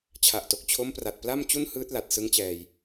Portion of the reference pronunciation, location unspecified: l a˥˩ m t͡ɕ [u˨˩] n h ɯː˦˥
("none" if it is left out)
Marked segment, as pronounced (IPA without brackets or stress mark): u˥˩